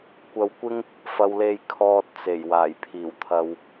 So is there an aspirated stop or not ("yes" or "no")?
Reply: yes